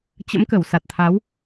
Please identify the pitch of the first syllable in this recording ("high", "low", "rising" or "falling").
rising